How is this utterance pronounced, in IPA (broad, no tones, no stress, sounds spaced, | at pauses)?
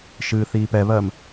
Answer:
ʃ ɨː θ iː p ɛ β ɜ m